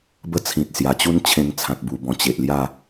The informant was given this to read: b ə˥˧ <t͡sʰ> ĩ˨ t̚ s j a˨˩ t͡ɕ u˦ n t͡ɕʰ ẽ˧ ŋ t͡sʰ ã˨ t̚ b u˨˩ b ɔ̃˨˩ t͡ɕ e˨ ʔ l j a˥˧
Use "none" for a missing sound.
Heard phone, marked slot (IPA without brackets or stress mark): t͡sʰ